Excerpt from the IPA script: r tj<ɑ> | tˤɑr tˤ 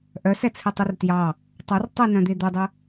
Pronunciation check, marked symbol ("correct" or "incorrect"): correct